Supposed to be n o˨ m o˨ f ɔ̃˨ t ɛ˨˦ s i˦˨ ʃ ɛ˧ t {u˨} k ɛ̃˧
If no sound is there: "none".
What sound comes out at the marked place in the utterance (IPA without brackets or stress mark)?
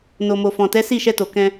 o˨